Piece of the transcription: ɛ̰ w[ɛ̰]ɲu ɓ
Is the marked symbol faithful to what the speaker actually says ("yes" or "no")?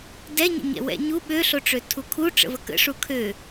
yes